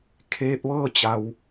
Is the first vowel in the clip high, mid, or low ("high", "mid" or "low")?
mid